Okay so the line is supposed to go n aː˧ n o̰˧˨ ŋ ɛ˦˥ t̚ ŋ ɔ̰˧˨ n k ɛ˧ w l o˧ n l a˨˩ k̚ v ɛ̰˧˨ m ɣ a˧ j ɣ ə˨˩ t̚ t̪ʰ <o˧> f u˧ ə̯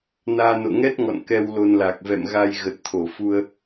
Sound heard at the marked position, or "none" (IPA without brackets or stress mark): o˧˩